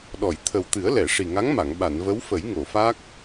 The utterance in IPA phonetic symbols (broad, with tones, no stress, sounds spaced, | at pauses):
ɗ ɔ˨˩˨ j t̪ʰ ə˨˩ w t̪ ɨ˨˩˦ ə̯ l ɛ˨˩˨ ʂ i˨˩ ŋ a˧˥ ŋ m a˨˩˨ ŋ ɓ a˨˩˨ n v ə˧˥ w f ə˨˩˦ j ŋ o˨˩˨ f a˦˥ k̚